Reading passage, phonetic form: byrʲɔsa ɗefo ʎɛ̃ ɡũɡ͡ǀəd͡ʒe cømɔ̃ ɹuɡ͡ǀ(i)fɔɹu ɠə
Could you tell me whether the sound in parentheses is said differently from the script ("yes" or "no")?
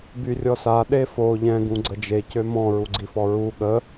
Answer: no